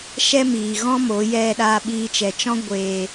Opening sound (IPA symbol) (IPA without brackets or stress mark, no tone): ʃ